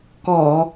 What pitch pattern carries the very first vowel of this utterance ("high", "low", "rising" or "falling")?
low